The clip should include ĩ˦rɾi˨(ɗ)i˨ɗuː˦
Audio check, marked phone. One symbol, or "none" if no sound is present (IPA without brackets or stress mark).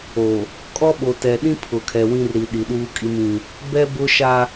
ɗ